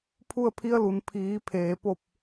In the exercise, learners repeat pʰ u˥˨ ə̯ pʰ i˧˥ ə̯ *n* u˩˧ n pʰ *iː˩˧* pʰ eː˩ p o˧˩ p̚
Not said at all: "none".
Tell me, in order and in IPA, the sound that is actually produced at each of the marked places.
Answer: l, iː˩˧

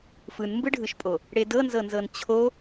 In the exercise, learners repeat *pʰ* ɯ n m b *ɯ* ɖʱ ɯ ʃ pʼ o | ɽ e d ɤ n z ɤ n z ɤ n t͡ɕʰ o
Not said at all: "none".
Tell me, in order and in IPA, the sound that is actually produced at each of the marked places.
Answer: f, ɯ

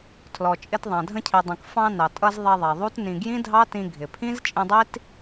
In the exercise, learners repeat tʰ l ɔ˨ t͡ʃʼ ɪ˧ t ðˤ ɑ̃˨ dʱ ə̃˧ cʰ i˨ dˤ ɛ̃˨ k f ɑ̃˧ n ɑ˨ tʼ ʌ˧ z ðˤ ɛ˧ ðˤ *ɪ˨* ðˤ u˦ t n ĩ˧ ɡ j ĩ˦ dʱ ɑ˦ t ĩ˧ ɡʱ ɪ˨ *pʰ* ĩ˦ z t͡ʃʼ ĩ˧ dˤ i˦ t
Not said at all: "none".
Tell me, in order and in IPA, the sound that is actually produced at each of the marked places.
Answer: ɛ˨, pʰ

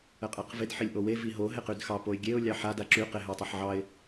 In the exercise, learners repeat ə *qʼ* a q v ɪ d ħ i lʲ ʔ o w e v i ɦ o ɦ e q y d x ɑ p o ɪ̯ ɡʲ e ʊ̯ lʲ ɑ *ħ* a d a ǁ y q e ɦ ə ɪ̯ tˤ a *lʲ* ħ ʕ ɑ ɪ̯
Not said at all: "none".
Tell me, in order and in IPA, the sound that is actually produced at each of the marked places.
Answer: qʼ, ħ, none

